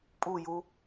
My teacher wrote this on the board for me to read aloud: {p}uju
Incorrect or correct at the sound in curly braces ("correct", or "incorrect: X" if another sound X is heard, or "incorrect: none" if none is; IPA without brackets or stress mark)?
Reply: incorrect: pʼ